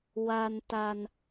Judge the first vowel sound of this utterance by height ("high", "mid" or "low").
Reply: low